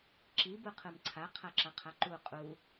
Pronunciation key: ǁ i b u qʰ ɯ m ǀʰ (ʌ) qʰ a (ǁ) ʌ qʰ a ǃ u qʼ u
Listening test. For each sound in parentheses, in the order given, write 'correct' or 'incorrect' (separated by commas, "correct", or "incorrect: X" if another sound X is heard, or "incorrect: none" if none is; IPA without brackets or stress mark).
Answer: incorrect: a, correct